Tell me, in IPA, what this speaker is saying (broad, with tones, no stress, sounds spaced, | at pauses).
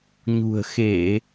ɲ ṳ˨˩ ə̯ x e˧˩˨